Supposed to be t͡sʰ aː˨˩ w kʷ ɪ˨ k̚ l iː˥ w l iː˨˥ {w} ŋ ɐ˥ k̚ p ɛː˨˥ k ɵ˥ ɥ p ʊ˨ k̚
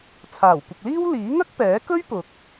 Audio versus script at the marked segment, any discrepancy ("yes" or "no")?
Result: yes